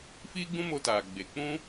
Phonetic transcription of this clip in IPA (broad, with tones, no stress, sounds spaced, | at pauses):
f iː˦ ɡ͡b ũ˦ m o˧ t aː˨ ɡ͡b e˨ k͡p ũ˦